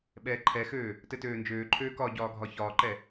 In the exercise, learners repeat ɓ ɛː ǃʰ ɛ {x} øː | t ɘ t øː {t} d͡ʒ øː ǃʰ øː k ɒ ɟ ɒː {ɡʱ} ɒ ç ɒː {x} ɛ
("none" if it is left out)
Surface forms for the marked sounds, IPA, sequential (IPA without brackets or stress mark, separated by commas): x, n, ɡʱ, ǃ